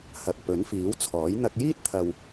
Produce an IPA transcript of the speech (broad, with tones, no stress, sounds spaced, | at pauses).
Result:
h ɐ˨ k̚ p ɵ˨˥ n f iː˨˥ w t͡sʰ ɔː˨˥ j n̪ ɐ˧ k̚ j iː˥ t̚ t̪ʰ ɐ˨ w